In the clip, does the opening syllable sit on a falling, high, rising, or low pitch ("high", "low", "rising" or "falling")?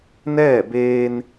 falling